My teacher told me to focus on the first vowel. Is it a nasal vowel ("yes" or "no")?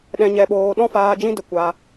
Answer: yes